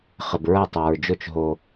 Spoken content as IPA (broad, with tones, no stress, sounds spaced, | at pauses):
χ ɘ˨ b ɹ ɐ˥˩ tˤ a˨ ɹ d͡ʒ ʊ˥˩ t͡ʃ ɦ o˨